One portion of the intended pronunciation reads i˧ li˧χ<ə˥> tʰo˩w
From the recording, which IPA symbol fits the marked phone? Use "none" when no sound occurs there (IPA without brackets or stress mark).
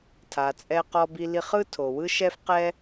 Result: ɯ˥